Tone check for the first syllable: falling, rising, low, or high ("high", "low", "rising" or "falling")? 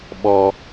high